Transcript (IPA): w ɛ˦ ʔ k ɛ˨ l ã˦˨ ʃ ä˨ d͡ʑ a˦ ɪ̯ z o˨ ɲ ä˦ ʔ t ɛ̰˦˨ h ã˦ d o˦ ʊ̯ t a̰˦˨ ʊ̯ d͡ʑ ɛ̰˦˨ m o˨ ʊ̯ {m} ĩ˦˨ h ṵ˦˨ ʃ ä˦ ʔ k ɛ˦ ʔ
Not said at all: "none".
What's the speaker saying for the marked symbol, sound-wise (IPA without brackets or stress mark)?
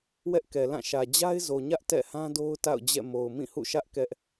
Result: m